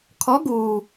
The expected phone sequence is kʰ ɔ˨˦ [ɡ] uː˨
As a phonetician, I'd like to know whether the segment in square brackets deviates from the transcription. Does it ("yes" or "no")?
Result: no